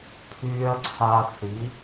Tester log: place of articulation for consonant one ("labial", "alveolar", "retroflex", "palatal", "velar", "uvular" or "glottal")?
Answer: labial